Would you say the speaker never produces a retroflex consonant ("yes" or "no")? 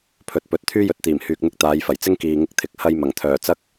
yes